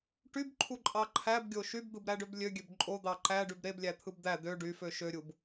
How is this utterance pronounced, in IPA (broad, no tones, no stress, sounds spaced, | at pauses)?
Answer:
ʈ y b ǃʰ u ǃʼ ɑ ǃʰ æ b ɡʲ o ʃ y b d̪ ɯ b ɾ æ ɖ ø b lʲ ø ɡʲ ø b ǃʼ o d̪ ɑ ǃ æ ɖ y b ɾ e b lʲ æ t̪ʰ ɯ b d̪ æ d̪ ø ɖ y f ø ʃ ø ɾʲ u b